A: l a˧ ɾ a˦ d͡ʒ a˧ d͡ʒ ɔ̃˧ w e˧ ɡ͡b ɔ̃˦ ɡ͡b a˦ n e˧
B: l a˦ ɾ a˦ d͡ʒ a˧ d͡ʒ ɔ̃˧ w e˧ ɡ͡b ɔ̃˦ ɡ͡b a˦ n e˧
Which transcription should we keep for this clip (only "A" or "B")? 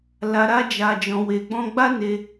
A